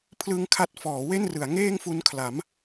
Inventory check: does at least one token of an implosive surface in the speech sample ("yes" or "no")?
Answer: no